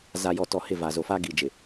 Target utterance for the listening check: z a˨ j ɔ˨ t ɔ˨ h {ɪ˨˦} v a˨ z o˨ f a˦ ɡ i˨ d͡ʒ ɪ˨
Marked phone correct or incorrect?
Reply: incorrect: ɪ˦˨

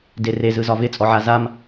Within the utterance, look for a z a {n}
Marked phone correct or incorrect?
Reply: incorrect: m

